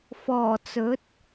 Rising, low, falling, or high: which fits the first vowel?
low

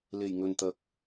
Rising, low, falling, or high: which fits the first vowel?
low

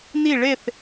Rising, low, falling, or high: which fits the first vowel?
falling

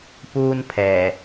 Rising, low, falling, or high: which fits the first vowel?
high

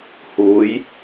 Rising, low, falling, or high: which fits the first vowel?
rising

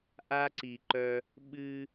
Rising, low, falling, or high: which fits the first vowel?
high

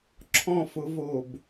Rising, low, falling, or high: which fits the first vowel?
falling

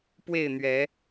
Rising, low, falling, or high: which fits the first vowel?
falling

